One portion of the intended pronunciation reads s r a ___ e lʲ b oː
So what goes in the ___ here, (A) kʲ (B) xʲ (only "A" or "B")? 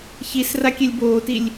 A